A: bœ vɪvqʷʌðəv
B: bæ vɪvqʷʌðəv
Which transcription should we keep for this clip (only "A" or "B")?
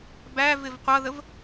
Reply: B